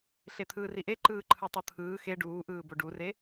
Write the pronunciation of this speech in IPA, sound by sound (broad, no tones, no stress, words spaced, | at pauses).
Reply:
ɬet̪ʰɯːriʔe ǃɯːǃʰɯtˤɯt̪ʰɯː xe ɖuːʔɯː boɖure